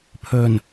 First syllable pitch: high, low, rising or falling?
low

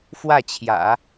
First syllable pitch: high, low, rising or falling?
falling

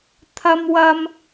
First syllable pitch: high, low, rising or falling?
high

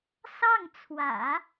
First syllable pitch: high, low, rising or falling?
falling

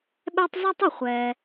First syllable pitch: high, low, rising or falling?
high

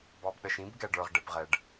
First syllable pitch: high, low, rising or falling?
low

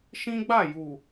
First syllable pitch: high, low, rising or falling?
high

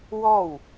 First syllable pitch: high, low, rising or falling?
falling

